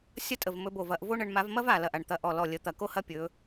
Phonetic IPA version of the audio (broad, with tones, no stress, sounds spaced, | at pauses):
sʲ ɐ˥ tʼ ə˧˩ v m ɵ˨˦ b o˧˩ v ɐ˨˦ ʔ v o˥ ɳ ə˨˦ ɳ m a˨˦ v m ɐ˥ v a˧˩ l ɐ˧˩ ʔ a˧˩ ɳ t̪ ɐ˧˩ ʔ ɔ˧˩ l ɔ˧˩ lʲ ə˨˦ t̪ ɐ˧˩ k o˥ h ɐ˥ pʲ ɵ˨˦